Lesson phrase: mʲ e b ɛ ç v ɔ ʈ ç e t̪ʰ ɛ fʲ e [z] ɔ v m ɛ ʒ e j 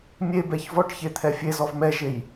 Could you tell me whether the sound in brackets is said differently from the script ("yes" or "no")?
no